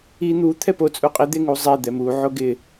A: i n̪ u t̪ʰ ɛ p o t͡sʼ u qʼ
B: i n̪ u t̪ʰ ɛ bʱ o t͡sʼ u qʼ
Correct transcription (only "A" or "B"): A